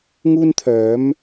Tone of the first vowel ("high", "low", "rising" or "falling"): high